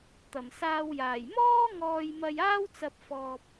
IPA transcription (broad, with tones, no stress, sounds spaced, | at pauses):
t̪ ɐ˨˩ m s aː˧ w j aː˨˩ j m ɔː˥ ŋ ɔː˧ j m ɐ˧ j aː˥ w t͡s ɐ˧ p̚ f ɔː˧ p̚